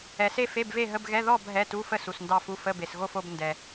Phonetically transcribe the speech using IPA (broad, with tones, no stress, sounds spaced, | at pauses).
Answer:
ɛ˨ s e˥˧ f e˧˥˧ b v e˥˧ ɦ ə˧˥˧ b ɣ ɛ˧˥˧ ð ɔ˥˧ b ɦ ɛ˧˥˧ t u˧˥˧ f ə˥˧ s u˨ s n d ɑ˥˧ f u˧˥˧ f ə˧˥˧ b e˨ s ɣ o˥˧ f o˥˧ b n d ɛ˨